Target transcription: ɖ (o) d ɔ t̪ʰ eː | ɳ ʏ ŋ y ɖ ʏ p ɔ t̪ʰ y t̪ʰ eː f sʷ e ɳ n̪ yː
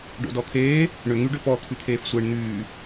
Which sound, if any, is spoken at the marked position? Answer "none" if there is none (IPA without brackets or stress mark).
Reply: o̰